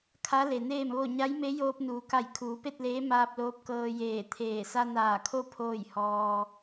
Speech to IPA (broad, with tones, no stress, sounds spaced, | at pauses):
kʰ a˧˥ l e˩ n eː˥˨ m ʋ o˥˨ ɲ a˧˥ j m e˧˥ j oː˧ p̚ n uː˩˧ k a˧˩ j kʰ uː˩˧ p e˥˨ t̚ l eː˧˥ m aː˧ p̚ l oː˧˥ p̚ k ɤː˧ j eː˧˩ t̪ʰ eː˧˩ s a˧ n aː˧˩ kʰ o˥˨ pʰ oː˥˨ j h ɔː˧